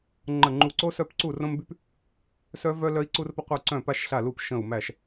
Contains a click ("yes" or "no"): yes